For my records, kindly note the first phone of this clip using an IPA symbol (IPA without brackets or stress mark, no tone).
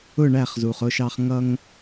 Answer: ʊ